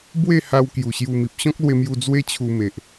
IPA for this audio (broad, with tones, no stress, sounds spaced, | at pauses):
b w e˥˧ h a˧ w k j u˨˩ ɕ j u˧ m i˨ p̚ ɕ ɔ̃˦ k̚ l w e˧ m j u˧ d͡z w e˦ t͡ɕʰ u˧ m e˨ ʔ